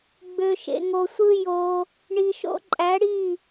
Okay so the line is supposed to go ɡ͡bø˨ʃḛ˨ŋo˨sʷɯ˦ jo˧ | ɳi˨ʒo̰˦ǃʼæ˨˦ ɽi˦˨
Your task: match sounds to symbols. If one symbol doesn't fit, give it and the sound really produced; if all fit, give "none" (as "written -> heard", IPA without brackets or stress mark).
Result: ʒ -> ʃ